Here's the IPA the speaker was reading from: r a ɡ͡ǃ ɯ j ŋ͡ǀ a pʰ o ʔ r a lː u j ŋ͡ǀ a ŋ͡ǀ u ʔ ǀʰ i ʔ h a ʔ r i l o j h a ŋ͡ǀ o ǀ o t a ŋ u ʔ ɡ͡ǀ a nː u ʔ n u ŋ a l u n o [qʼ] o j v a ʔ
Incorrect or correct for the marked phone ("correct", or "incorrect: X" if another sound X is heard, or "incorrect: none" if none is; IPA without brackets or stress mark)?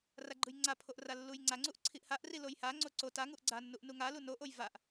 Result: incorrect: ʔ